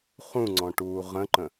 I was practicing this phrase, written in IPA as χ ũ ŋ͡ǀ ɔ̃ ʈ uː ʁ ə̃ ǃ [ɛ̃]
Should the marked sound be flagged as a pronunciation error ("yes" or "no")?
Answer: yes